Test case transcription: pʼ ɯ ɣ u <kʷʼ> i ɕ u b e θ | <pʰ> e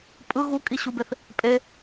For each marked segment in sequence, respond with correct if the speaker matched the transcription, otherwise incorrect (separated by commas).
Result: incorrect, incorrect